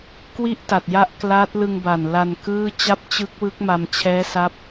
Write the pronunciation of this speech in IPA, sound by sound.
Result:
k w i˥˩ ʔ t a˨˩ t̚ j a˦˥ ʔ k l a˦˥ t̚ l ɯ˧ ŋ b a˨˩ n l a˧ n k ɯː˥˩ t͡ɕ a˥˩ p̚ t͡ɕ ɯ˦˥ k̚ w ɯ˦˥ k̚ m a˧ m t͡ɕʰ ɛː˦˥ s a˦˥ p̚

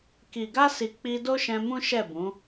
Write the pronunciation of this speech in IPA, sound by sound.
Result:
k i˨ ɡ a˧ s i˨ k͡p i˧ d o˦ ʃ ɛ̃˧ m ũ˦ ʃ ɛ˦˨ b ũ˨˦

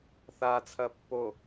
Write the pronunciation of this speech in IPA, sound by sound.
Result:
θ a t͡sʰ ɐ pː o

